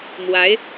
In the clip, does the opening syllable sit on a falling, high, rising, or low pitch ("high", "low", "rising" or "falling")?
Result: rising